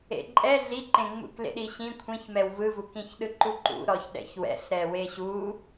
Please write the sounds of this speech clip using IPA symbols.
ḛǃʼɛ ɮiǃẽŋ͡mṵk lḛɗiɕĩ kʷʰĩçmɛw vɯvukĩçɗɯ ǃuǃṵɾɔç ɗɛ̰çwɛ̰ɬ ɾɛweɕu

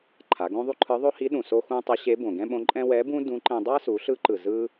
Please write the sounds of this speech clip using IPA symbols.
ǃʰa˩˧ɡõ˥ðˤu˥ǃʰɯ˧˥ ðˤo˥hi˧˥ɗũ˩ so˥xũ˥ tˤʌ˧˥ɕe˧˥ bõ˩ɡɛ̃˥ɓõ˧˥ǃʼɛ̃˥ wɛ˧˥bũ˥ dũ˧˥ ǃɛ̃˧ dˤa˥su˩˧ɬɯ˧˥ǃɯ˩ zɯ˥

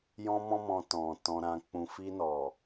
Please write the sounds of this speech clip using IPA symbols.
jɔ̃˦mɔ̃˦mɔ̃˧ tɔ̃˨ tɔ̃˧ɾã˧k͡pũ˧ fi˧nɔ˨

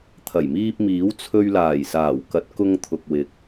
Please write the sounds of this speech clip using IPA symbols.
t̪ʰɐ˨˩jmiː˧p̚miː˨˥wt͡sʰɵ˧ɥ laː˨˩jsaː˨˩w kɐ˨˥t̚kʊ˧ŋt̪ʰʊ˨k̚wɪ˨k̚

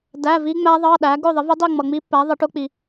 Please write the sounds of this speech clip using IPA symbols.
dæ˧˥˧ vi˦˥ŋ͡mæ˦˥ ðˤɑ˧˥˧ɗæ˨˥ ɡʊ˥˧ðˤɪ˨˥v ɪ˦˥dˤi˥˧ ŋ͡mʌ˨ŋ͡mi˦˥pːæ˨˥ ðˤɪ˨˥ʈʊ˦˥k͡pi˨

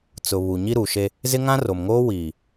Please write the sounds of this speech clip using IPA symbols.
t͡sʊ˨ βu˨ɲi˦ɾu˨ʃe˦ | zɪ˦ŋã˦ro˨mŋoː˦ wiː˨

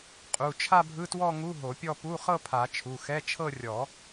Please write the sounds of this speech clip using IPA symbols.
qʼu˩˧˩ t͡ʃʰa˥˧bʱɯ˧˥˧twɔ˥˧ŋu˧˥˧ ɦo˨˩˦pʲɔ˥˧ pu˧˥˧χɤ˥˧pʰa˨˩˦ t͡ʃʰu˩˧˩xɛ˧˥˧t͡ʃʰɤ˥˧ rʲɔ˨˩˦

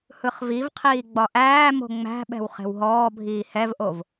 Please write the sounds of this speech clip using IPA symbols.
hɯχvivqʰiː ɡ͡bɒʔæːmo̤ ŋ͡mæ̤ɓɛ̤w χe̤wɦɔːbʱiː hɛvʔov

